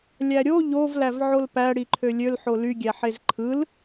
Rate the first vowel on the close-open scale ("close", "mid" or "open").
open